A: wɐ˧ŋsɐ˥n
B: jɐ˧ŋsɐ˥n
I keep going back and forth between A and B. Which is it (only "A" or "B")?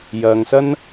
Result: B